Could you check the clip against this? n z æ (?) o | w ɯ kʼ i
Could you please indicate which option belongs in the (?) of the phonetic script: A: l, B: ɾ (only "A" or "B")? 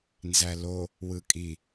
A